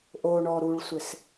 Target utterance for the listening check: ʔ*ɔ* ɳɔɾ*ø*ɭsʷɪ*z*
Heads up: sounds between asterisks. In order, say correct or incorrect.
incorrect, incorrect, incorrect

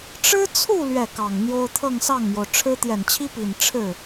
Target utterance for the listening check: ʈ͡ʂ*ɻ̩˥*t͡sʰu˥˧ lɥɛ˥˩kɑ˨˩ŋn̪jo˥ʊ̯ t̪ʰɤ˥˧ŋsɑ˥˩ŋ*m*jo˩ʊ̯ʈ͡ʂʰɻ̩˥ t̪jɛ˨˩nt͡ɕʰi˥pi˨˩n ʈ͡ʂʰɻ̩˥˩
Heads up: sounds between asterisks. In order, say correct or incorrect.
correct, correct

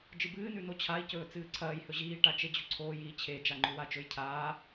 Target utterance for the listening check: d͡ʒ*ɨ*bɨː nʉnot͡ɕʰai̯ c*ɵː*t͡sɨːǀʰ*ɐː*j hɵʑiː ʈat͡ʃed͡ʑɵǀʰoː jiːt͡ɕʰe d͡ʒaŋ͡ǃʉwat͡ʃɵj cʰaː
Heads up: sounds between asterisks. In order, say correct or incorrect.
correct, correct, correct

